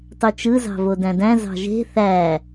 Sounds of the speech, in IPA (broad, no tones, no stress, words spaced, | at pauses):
tˤyt͡ʃɯ zɑ̤vodæ̃dæ̃ zɑ̤ʒe̤ θæ